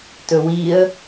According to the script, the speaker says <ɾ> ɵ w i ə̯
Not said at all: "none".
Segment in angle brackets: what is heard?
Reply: t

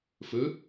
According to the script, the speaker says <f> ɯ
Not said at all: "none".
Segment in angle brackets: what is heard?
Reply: f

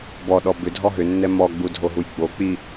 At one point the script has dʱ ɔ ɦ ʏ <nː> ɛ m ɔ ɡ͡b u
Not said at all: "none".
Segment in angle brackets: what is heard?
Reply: nː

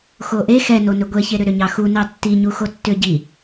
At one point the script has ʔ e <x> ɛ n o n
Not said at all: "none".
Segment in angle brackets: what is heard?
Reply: x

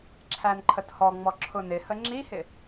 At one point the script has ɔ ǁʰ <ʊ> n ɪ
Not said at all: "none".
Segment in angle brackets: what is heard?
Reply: ʊ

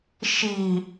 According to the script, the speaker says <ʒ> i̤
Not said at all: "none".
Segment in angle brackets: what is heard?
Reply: ʃ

